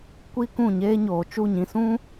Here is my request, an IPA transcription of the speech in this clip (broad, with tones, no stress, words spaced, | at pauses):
kʷi˦ kũ˦˨ɲeː˦ ɲoː˨t͡ʃu˦˨ɲĩ˧ sũ˦